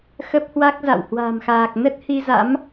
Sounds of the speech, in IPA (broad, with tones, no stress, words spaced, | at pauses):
xə˦˥p̚hwa˦˥k̚za̰˧˨w hwa̤˨˩mxaː˨˩k̚ nə˦˥t̚ hi˧za̰˧˥m